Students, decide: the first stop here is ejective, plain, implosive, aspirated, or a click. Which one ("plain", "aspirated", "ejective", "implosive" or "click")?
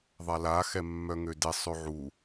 plain